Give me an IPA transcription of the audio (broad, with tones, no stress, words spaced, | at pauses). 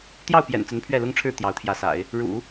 t̪jɑ˥˩ʊ̯pjɛ̰˨˩n t͡sə˧˥npʰɥɛ˥˩lʊ˥ŋʈ͡ʂʰɻ̩˥˩ t̪jɑ˧˥ʊ̯t̪ʰjä˧˥sa̰˨˩˦ɪ̯ | ɻṵ˨˩˦